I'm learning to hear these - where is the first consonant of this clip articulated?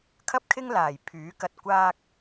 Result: velum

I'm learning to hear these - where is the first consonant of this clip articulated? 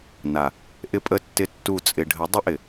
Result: tongue tip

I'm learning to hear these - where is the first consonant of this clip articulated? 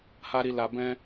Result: throat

